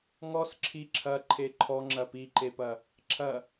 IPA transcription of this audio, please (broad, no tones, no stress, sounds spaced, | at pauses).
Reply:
ŋ ɔ s ǁʰ i ǁʰ ɐ ǃʰ e ǃʰ ɔ ŋ͡ǁ ɐ p i ǃ e p ɐ | ǁʰ ɐ